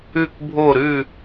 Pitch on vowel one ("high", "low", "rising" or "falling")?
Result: falling